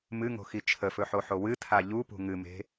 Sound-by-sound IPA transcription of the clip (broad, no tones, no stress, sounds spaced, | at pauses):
m ɨ ŋ o̤ x i t͡ʃʰ ə f ɵ ħ o ħ o w ɨ tʰ a ʎ u p ṳ ŋ ɨ m e̤